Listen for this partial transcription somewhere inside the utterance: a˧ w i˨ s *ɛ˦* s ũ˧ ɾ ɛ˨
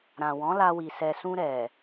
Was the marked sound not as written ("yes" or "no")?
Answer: yes